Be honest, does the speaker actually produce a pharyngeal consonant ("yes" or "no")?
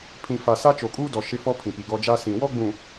no